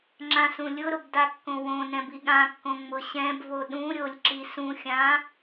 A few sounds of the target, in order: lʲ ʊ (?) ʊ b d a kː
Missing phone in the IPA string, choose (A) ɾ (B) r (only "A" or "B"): A